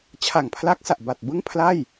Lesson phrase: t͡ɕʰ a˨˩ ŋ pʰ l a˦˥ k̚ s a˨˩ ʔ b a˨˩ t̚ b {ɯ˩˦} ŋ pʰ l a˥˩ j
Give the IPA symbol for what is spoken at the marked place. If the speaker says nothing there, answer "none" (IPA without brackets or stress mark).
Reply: ɯ˥˩